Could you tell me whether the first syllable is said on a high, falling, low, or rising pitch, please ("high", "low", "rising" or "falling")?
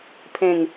falling